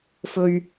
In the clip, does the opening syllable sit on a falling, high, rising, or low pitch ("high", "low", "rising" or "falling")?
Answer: low